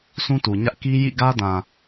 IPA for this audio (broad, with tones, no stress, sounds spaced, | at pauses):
sʰ ũ˦ t u˨ ɲ ä˦ ʔ k i˦ j ḭ˦˨ ɡ ä˦ d ã˨